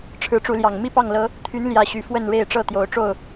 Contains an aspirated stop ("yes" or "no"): yes